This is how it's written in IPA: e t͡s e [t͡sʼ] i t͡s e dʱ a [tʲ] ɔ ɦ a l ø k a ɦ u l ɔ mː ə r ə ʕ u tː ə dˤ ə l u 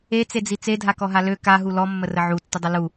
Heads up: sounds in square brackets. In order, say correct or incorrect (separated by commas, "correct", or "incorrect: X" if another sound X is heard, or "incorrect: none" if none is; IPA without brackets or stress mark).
incorrect: d͡z, incorrect: k